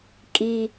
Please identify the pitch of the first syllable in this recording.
low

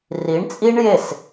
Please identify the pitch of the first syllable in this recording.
rising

